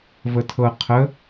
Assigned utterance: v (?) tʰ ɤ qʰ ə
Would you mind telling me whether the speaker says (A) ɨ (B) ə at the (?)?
B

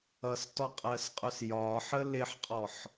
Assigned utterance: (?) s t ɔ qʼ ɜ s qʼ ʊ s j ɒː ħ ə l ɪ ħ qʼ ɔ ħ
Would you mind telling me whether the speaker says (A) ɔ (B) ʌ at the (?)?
B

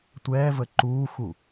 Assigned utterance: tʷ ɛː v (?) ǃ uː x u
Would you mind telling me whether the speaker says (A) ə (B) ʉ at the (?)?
A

